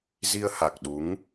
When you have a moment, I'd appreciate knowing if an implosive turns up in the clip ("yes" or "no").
yes